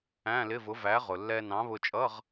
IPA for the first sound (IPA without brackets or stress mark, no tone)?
æ̃